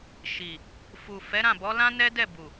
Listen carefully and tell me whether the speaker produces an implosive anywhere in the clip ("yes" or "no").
no